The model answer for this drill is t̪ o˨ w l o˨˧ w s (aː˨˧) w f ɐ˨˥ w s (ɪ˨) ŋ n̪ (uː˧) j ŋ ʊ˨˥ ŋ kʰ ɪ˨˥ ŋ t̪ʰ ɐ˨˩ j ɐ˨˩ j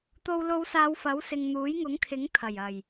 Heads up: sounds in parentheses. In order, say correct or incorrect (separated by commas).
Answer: correct, correct, incorrect